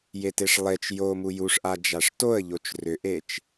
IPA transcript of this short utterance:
j e t e ʂ lˠ e t͡ʃ j o m u j u ʂ ʔ a d͡ʒ a ʂ t o ə̯ ʎ o t͡ʃ r ʏ ʔ e t͡ʃ

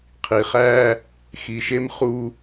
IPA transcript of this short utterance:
qʰ i˨ χ æː˦ | x i˨ ʃ e˦ m χ uː˦

